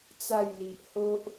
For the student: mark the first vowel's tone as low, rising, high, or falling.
falling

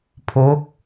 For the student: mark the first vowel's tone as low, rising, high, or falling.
rising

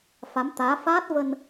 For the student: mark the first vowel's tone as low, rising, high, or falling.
rising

